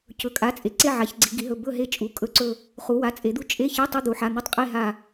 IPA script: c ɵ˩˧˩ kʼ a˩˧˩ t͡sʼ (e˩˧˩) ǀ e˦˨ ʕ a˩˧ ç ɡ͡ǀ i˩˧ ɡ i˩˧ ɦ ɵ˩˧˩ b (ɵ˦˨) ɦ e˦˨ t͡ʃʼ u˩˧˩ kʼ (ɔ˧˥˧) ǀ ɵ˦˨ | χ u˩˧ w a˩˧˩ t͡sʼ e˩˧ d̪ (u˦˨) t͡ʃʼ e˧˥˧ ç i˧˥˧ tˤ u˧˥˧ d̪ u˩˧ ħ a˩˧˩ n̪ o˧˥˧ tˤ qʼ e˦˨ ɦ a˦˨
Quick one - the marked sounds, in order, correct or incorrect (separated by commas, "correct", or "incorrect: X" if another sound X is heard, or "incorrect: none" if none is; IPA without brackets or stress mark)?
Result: incorrect: e˩˧, correct, incorrect: ɵ˧˥˧, correct